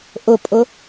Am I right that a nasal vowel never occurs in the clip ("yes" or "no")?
yes